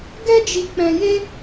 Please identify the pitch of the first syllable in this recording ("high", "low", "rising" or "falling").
high